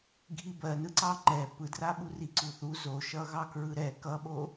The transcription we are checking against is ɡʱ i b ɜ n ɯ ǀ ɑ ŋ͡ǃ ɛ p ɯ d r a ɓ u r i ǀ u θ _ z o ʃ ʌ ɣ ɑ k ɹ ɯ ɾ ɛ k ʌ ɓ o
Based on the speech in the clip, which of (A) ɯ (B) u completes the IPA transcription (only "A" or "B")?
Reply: B